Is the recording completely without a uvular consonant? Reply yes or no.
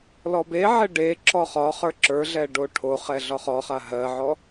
no